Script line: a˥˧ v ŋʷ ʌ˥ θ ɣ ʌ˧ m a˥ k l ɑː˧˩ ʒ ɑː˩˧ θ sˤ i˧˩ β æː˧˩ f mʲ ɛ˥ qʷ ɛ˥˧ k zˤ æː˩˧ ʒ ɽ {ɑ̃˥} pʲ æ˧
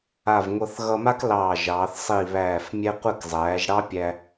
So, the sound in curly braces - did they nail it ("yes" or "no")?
no